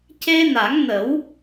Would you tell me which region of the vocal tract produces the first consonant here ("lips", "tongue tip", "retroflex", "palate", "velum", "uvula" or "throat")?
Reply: palate